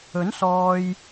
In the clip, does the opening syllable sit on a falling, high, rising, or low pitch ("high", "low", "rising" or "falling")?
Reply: rising